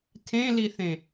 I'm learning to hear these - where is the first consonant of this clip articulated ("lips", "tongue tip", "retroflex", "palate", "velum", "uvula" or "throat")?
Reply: tongue tip